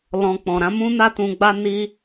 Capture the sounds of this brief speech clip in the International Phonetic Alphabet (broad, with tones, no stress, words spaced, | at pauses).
lɔ̃˨ k͡pɔ̃˨ɾã˧mũ˦na˦ tũ˧ɡ͡ba˦ ni˦